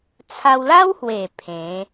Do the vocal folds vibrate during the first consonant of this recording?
no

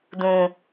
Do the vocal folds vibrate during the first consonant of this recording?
yes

